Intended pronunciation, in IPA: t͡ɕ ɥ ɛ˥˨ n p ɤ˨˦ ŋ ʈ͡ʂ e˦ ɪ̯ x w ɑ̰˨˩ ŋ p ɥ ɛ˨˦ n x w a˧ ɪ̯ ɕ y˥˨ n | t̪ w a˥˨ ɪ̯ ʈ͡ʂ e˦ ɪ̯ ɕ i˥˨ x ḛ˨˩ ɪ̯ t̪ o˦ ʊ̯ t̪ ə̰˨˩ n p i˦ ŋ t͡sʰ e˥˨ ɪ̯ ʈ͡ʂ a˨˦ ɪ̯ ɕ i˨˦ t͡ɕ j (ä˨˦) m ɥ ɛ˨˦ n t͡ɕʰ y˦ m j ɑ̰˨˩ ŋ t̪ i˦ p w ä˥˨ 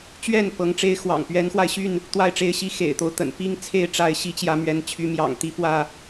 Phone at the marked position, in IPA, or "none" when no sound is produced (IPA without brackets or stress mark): ä˨˦